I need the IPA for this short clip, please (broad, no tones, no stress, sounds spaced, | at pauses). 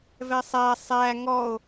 v ɛ sˤ æ sˤ æ ŋ ɔ o̯